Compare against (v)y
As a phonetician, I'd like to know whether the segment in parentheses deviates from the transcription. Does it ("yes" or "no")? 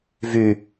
no